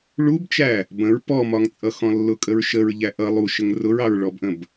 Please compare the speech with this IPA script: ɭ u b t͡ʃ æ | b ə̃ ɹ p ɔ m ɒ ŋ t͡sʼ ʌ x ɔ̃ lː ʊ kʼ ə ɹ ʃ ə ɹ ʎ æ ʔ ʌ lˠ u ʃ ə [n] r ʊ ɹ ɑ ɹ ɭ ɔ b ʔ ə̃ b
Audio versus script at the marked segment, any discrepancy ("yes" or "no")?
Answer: yes